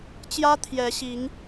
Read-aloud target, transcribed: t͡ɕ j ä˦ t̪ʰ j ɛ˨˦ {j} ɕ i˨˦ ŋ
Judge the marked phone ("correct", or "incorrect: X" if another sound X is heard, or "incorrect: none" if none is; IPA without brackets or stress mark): incorrect: none